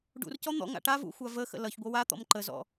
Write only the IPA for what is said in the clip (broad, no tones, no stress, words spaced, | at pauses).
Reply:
ɖṵrcɔ n̪ɔ̰ŋa̰ ʈavṵ xʷavəxə̰ lʌçɡʷʌ wa t̪ɔ̰mǃəzɔ̰